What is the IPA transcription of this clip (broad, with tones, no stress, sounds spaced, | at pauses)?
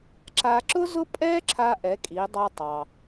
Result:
ǁ a˧ ǁ ʊ˥ z ʊ˥ pʼ ɛ˥ ǁʰ a˧ ʔ ɛ˩˧ kʼ i˩˧ dˤ a˧ tˤ ɑ˩